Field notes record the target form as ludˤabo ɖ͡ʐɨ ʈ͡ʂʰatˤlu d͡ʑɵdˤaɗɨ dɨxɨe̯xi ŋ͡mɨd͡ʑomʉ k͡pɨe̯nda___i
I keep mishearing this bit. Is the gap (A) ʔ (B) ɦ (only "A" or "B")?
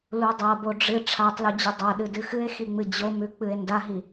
B